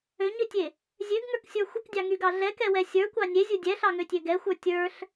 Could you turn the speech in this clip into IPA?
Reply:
ø ɲ ø tʲ e | zʲ ø ɡ ŋ ə˞ k sʲ ə˞ xʷ ə k dʲ ɑ ŋ y ɡ ɑ ɮ ɛ k ɛ w ɛ sʲ ə˞ kʷ ɑ nʲ e zʲ u dʲ ɛ ɬ ɑ ŋ ø tʲ ø ɡ ɛ xʷ ə˞ tʲ ə˞ ɬ

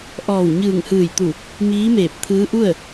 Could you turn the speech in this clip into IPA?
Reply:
ʔ ɔː˧˩ w ɲ ɯː˧˩ ŋ h ɯː˧˩ j t̪ u˧˩ | m iː˧˥ m eː˧˩ p̚ t̪ʰ ɯː˧˥ ʔ u˥˨ ə̯

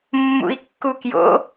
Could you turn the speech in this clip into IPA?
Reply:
mː ṵ i̯ kː u k j o̰

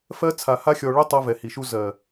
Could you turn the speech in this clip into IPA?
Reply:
f ɜ˧ t͡sʰ a˨ h a˧ xʲ ɔ˨ ɭ ʏ˦ tˤ ɜ˧ v ɛ˨ h i˨ ʃ u˧ z ɜ˨

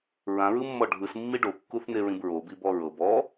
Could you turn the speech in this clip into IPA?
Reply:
ɹ ã ɹ ɯ mː ɔ ɖʱ ɯ s mː i ɖ o kː u θ n e ɹ ĩ b ɹ o b i b ɔ ɹ ɤ b ɔ

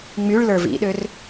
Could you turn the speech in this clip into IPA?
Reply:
ŋ͡m y ɭ l ə˞ v ḭ ɗ ø r

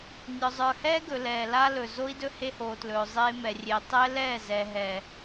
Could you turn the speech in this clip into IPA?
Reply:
nʲ ɔ˨ zˤ ə˞˨ h ɛː˦ ɡ ɵ˨ l ɛː˨ l a˦ l ɵ˨ z o˦ i̯ d ɵ˦ h e˦ h oː˨ t l ɵː˨ zˤ eː˦ m ɛ˨ rʲ e˨ tˤ ɛ˦ l ɛː˦˨ z ɛ˨ ɦ ɛ˨

